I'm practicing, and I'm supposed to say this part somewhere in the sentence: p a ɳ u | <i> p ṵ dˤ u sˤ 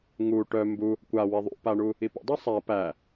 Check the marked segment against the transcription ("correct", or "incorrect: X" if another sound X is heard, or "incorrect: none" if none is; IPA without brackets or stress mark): correct